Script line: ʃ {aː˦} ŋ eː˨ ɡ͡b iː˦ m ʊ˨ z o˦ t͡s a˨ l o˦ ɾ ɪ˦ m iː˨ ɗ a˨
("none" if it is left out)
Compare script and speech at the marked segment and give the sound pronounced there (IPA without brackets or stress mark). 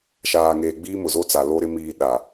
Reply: aː˨